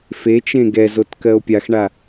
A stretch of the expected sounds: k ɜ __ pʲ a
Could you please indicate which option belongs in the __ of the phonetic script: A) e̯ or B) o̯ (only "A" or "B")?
B